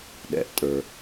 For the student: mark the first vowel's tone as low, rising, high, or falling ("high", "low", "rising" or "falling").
low